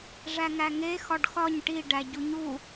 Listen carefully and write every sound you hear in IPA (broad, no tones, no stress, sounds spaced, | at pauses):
ʐ æ ŋ æ ŋ e x ɒ ɖ x ɒ ɲ ʈ i ɖ æ ɟ u ɲ u